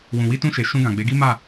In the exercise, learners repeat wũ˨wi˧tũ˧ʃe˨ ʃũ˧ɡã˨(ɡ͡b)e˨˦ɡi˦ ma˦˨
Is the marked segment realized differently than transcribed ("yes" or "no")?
no